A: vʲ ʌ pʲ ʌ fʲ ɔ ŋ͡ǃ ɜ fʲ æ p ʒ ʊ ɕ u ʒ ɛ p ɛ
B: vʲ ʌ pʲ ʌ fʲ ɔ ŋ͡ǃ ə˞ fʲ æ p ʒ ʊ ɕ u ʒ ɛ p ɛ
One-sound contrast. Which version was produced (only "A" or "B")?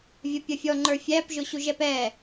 B